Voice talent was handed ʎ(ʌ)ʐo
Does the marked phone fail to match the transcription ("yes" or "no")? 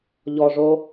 yes